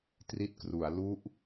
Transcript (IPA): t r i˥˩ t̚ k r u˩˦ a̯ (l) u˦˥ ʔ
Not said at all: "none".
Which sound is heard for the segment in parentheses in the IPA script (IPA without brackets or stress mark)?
l